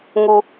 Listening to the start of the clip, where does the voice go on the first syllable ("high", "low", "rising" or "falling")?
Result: high